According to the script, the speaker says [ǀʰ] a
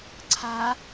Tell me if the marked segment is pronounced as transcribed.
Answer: yes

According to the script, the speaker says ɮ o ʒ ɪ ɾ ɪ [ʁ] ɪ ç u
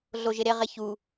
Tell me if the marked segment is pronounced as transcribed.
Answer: yes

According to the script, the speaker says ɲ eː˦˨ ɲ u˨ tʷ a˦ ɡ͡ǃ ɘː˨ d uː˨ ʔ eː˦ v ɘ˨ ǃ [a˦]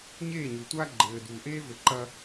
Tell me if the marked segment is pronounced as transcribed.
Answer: no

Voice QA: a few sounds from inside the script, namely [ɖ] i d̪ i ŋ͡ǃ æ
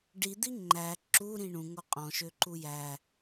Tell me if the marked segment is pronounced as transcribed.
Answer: yes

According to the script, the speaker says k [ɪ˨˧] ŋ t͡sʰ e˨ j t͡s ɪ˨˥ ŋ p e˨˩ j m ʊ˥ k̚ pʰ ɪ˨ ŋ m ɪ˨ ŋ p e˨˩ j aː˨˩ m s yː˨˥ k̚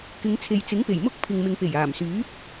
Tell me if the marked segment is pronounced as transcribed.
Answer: yes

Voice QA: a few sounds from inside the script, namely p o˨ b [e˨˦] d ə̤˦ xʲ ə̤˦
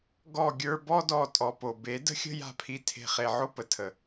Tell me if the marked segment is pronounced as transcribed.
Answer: yes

